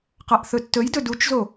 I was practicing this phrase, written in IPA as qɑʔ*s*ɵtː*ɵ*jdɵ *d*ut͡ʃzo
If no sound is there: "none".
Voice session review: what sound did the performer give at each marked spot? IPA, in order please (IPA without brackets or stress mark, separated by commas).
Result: θ, ɵ, d